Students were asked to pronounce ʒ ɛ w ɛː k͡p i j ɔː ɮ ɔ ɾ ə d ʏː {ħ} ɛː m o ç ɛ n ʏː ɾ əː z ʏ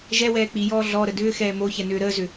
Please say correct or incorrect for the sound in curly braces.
incorrect